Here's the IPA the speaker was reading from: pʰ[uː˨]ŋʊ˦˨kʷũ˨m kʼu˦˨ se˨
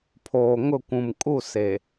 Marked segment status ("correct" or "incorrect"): incorrect